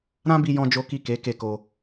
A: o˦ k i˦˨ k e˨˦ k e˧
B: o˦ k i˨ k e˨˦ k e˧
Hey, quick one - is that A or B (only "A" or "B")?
A